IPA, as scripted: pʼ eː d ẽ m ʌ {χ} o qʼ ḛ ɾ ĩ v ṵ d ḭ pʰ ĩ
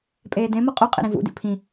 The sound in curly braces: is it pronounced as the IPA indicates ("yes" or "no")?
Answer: no